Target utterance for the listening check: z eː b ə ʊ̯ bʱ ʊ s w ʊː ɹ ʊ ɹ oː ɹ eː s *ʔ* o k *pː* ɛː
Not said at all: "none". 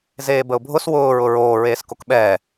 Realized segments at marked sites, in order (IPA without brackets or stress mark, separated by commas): k, ɓ